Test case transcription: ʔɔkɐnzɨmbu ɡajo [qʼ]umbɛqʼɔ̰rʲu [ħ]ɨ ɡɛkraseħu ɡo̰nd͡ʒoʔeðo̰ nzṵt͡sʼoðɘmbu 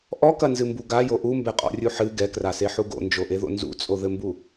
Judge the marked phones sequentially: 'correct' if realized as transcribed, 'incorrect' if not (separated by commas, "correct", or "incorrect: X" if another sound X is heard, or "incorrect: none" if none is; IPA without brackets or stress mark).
incorrect: ʔ, correct